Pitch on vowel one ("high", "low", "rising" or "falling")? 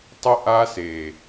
high